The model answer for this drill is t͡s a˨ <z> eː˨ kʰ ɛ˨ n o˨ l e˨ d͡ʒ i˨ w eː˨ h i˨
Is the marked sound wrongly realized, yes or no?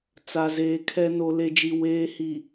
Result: no